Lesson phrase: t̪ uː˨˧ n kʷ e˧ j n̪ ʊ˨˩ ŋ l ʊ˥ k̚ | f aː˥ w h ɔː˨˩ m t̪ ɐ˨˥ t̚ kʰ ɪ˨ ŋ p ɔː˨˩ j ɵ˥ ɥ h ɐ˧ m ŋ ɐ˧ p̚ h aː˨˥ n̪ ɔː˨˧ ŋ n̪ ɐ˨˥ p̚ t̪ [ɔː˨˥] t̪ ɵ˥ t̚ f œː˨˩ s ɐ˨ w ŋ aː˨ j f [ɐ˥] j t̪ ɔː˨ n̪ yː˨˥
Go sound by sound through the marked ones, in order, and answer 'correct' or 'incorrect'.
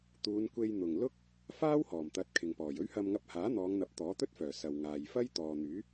correct, correct

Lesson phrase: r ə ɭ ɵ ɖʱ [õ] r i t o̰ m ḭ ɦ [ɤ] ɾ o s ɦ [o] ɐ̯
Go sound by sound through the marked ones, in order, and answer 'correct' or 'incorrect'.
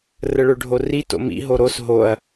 incorrect: o, incorrect: o, correct

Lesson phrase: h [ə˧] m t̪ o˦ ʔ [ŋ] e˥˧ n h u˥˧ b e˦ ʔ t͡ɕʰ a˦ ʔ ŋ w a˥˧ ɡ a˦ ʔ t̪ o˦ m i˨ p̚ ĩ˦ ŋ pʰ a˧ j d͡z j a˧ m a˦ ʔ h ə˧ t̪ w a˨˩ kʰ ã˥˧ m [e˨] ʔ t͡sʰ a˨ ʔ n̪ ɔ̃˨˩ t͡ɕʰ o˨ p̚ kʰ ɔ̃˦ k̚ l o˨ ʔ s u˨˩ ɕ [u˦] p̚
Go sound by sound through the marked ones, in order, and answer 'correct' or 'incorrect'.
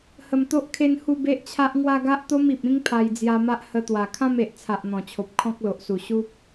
incorrect: ə˨˩, incorrect: kʰ, correct, correct

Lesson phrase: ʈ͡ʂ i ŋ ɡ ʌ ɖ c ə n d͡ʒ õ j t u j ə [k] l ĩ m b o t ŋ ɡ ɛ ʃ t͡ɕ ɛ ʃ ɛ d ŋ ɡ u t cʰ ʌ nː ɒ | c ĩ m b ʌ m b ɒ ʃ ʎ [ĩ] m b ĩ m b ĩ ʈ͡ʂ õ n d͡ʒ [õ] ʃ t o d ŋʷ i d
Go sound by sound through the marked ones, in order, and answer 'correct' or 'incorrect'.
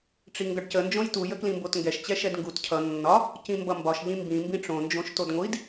correct, correct, correct

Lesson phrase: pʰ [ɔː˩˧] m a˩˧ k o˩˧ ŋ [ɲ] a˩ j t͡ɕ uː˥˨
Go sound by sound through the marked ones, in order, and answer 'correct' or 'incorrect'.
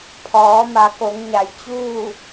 correct, correct

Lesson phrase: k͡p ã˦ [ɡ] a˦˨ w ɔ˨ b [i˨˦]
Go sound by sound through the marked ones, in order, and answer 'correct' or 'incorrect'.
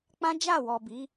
incorrect: d͡ʒ, correct

